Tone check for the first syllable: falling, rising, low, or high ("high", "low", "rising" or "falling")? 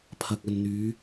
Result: low